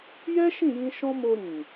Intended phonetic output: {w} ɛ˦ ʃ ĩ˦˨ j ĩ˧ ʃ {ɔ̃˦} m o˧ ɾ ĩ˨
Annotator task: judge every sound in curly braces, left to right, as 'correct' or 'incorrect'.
incorrect, correct

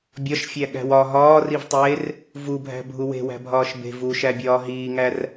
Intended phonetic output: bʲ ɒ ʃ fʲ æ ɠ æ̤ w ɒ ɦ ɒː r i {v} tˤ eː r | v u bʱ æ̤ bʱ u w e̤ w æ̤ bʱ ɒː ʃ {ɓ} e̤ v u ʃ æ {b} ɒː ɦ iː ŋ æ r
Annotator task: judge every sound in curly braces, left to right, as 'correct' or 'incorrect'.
correct, incorrect, incorrect

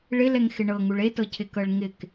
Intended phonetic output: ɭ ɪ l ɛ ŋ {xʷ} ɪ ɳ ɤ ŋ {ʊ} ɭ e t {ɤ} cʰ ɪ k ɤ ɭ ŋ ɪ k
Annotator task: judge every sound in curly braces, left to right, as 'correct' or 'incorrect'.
incorrect, incorrect, correct

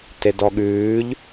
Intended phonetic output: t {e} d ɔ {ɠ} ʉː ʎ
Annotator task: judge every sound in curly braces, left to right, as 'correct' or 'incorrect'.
correct, correct

